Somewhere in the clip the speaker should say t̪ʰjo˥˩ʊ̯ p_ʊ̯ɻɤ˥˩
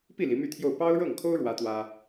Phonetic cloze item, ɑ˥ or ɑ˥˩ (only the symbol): ɑ˥